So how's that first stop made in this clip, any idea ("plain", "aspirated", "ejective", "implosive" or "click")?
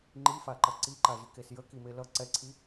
click